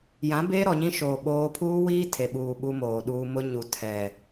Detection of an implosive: present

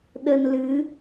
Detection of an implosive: present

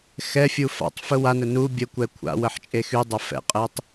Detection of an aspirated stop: present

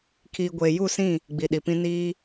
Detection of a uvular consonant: absent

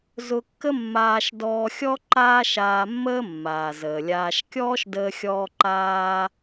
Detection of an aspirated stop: absent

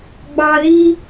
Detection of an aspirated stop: absent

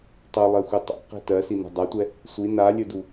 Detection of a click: absent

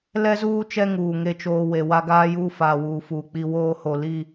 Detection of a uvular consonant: absent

